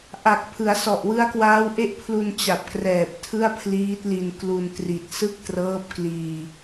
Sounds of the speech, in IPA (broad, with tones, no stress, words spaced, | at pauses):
ʔa˨˩k̚pʰɯ˩˦a̯sɔ˨˩ʔ wɯ˦˥a̯kwaː˦˥wʔe˥˩ʔpʰlu˧n t͡ɕa˨˩p̚krɛː˨˩p̚tʰɯ˥˩a̯ pʰliː˦˥t̚li˧nklu˧ntri˨˩t̚ sɯ˥˩k̚trɤː˦˥p̚ kliː˧